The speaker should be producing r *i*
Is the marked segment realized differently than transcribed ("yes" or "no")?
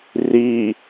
no